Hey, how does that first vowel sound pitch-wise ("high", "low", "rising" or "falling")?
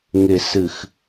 low